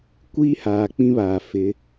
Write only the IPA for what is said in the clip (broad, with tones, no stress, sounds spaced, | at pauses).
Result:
kʷ iː˦ h aː˨ k͡p ĩ˦ β aː˨ f ɪ˨˦